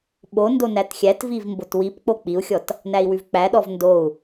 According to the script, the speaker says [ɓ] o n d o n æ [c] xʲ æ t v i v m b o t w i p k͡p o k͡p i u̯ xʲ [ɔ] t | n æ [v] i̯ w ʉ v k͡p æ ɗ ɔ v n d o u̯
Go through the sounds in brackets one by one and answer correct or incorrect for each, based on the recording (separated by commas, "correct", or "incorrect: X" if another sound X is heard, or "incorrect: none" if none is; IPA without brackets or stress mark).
correct, incorrect: t, correct, incorrect: none